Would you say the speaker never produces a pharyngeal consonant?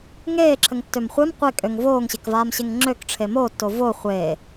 yes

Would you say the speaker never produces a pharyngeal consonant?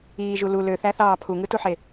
no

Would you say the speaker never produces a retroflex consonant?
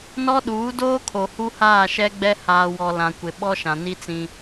yes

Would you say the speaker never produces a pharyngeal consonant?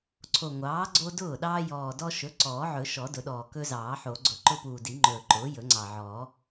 no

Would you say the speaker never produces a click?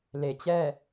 yes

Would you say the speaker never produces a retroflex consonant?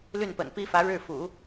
no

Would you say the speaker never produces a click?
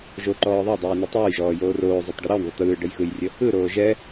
no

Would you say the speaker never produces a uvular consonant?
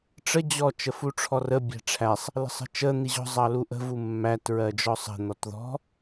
yes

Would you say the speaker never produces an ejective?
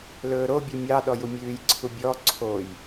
yes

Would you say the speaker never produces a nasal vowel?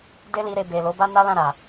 no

